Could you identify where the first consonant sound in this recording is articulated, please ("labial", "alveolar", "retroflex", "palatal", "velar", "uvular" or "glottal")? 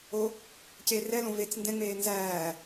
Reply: palatal